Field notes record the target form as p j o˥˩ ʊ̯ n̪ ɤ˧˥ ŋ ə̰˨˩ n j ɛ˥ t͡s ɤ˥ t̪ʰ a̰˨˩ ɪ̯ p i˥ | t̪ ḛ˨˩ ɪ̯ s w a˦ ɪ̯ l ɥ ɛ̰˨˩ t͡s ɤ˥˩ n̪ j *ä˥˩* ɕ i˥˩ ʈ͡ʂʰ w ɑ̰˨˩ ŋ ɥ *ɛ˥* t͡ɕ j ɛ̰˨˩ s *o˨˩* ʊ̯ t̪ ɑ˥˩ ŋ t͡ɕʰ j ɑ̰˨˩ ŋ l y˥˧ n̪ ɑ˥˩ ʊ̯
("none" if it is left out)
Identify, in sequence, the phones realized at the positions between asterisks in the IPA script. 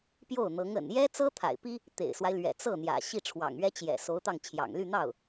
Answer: ä̰˨˩, ɛ˥, o˧˥

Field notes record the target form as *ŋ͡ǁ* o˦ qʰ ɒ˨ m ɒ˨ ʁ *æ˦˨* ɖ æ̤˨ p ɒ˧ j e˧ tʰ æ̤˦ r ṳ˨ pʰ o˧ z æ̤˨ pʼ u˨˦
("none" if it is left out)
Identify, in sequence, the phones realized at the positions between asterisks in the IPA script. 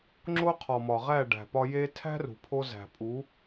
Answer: ŋ͡ǁ, æ˦˨

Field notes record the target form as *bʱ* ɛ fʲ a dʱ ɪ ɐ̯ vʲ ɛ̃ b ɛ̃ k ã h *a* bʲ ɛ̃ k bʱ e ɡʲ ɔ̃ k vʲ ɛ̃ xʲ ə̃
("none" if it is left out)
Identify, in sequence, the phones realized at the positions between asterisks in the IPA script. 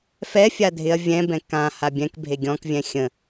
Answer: f, a

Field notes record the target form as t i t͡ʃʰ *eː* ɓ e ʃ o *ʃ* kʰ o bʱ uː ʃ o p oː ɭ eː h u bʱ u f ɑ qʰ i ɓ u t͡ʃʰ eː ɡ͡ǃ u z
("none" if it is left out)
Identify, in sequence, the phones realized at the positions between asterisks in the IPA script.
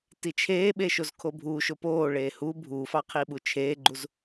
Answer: eː, z

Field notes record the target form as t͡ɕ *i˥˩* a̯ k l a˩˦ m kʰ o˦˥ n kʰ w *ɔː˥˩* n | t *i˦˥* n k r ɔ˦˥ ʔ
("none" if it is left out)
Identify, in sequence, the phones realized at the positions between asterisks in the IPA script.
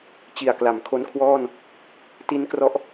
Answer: i˨˩, ɔː˥˩, i˦˥

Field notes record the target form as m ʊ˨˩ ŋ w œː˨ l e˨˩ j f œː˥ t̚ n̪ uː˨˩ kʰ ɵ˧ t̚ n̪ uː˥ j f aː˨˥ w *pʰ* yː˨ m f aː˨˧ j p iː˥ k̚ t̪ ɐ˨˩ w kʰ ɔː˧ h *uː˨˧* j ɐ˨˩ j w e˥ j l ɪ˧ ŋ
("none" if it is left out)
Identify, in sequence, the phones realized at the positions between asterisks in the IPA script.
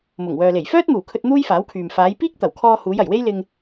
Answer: kʰ, uː˨˧

